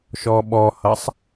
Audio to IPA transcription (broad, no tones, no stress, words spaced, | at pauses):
ʃɔɓɔhʌsˤ